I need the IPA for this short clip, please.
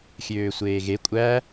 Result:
xʲ øː sʷ eː ɣ e kʷʼ æ

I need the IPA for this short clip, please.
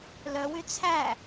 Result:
l œ w y t͡sʰ æ

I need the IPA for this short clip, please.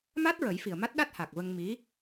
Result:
m a˦˥ t̚ ɹ ə˨˩˦ j f i˨˩ ə̯ m a˦˥ t̚ ɗ a˦˥ t̚ h a˨˩ k̚ v ə˧ ŋ m i˧˥

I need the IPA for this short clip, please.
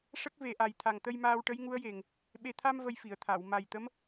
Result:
ʂ ə˦˥ k̚ v e˨˩ ʔ a˨˩ j t̪ʰ a˨˩ ŋ t̪ ə˧ j m aː˧ w ʈ ə˧˥ j ŋ u˧˥ ə̯ j e˨˩ ŋ | ɓ e˨˩ t̪ʰ a˧ m v ə˧ j f i˨˩˨ ə̯ t̪ʰ a˨˩˨ w m a˨˩ j t̪ ə˧˥ m

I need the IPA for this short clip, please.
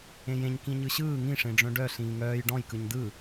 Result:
ẽ j ẽ ɲ k ĩ ɲ ɯ ɕ ɯː ŋ ĩ ʂ ẽ ɖ͡ʐ œ̃ ɖ œ ɬ ĩː ŋ œː j ɖ ɔ̃ j k ɯ ɲ d ɯ

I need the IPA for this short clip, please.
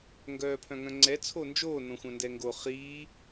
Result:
ŋ ɡ œː pʰ œ̃ ŋ œ̃ ŋ͡ǀ ɛ t͡sʰ o n d͡ʒ oː n õ xʷ œ̃ n d ɛ ŋ ɡ o χ iː

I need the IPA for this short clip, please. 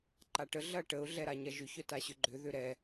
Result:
ǃ a ʈ ə ɮ ɐ ʈ ə ʊ̯ ɮ ɛ ɾ a ɲ ɐ ʒ ʏ ç œ t a ɕ ʏ ɡ͡ǃ ʏ ð ʏ ɾ ɛ

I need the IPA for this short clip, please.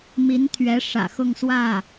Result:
m i˧˥ n t̪ʰ ɥ ɛ˧˥ ʂ ä̰˨˩ x ʊ˥˧ ŋ s w ä˥˩

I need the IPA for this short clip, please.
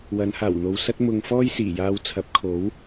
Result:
w ɐ˨˧ n h aː˨˩ w n̪ o˨ w s ɐ˥ t̚ m ʊ˧ ŋ f ɔː˥ j s iː˨˩ j aː˧ w t͡sʰ ɐ˨˥ p̚ kʰ o˨˥ w

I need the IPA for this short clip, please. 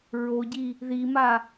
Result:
ɹ o ɟ i | ð i m a

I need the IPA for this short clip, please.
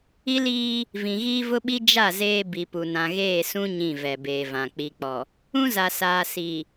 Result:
i˦ l iː˦ | v ĩ˨ ɣ iː˦ v ʊ˦ ɓ i˦ d͡ʒ a˦˨ z eː˦ b i˨ p u˨ n ã˨ ɣ eː˦˨ s ũ˦ ɲ ĩ˦˨ v ɛ˨ b eː˨ v ã˨ k͡p i˨ k͡p ɔ˨ | ũ˦ z a˨ s aː˨ s i˨

